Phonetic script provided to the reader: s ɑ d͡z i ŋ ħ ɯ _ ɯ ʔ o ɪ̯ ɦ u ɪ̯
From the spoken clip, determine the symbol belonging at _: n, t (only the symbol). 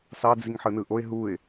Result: n